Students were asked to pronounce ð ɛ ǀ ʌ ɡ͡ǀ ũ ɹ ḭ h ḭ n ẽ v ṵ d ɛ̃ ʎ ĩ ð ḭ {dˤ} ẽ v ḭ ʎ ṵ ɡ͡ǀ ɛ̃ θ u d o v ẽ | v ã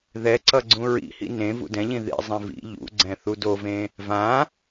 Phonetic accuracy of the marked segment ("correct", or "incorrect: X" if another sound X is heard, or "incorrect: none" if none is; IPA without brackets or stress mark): incorrect: zˤ